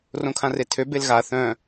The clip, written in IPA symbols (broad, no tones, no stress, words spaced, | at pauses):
rõkʰãretʰø belɣa θœ̃